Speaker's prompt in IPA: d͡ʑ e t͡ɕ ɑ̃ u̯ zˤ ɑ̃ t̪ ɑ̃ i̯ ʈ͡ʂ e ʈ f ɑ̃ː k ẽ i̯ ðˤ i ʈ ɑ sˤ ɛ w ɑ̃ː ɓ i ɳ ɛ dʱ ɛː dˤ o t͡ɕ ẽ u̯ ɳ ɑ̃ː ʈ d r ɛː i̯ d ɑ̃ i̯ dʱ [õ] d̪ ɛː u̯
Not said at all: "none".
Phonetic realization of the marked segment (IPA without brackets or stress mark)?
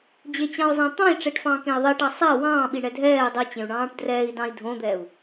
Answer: õ